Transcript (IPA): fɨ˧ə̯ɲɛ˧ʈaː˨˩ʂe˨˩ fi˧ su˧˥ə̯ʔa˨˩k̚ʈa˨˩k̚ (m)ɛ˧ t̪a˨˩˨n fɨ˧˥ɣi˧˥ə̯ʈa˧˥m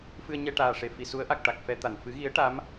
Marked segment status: incorrect: f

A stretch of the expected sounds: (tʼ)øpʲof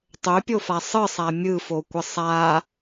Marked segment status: incorrect: tˤ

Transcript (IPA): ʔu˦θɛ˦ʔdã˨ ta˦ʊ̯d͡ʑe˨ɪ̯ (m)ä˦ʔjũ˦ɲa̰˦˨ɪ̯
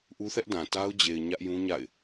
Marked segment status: incorrect: ɲ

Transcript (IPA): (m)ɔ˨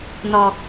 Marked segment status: incorrect: n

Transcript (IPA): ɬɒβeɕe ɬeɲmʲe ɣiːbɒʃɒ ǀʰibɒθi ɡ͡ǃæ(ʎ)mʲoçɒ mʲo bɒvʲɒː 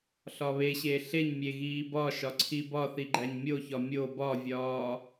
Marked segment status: incorrect: ɲ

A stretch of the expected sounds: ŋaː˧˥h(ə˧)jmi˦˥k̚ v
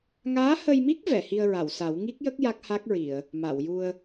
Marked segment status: correct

